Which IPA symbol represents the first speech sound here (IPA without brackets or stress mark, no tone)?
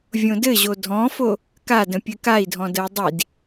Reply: vʲ